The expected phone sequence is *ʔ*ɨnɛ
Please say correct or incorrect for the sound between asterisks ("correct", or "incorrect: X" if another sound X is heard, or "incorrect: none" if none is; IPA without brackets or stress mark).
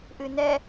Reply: correct